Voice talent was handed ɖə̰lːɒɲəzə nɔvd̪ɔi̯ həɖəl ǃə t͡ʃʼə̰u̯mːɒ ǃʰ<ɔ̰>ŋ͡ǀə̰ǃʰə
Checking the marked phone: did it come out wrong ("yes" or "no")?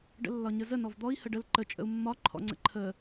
no